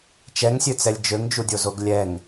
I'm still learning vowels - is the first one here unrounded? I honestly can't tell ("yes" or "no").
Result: yes